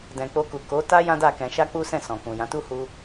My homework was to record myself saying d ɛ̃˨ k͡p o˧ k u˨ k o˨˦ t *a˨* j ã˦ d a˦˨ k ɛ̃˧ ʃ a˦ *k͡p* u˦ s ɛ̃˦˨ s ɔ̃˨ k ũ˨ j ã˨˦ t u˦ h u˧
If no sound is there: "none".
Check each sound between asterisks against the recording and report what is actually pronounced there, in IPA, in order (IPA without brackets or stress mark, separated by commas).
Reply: a˦, k͡p